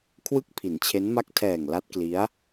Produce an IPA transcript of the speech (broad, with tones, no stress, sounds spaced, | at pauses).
kʰ w ɯ˥˩ k̚ pʰ i˩˦ n t͡ɕʰ e˦˥ n m a˥˩ k̚ tʰ ɛː˨˩ ŋ l a˦˥ t̚ k l i˦˥ a̯